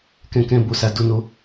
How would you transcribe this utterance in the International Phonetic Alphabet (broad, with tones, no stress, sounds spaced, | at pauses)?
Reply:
k ɛ̃˧ k ɛ̃˧ b o˧ s a˨ d o˨˦ n o˧